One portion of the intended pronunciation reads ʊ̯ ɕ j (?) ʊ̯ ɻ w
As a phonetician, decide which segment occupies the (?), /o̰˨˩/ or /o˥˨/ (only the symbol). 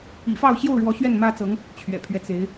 o˥˨